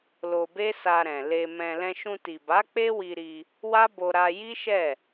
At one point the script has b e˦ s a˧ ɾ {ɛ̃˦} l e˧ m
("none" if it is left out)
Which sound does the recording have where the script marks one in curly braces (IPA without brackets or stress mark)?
ɛ̃˨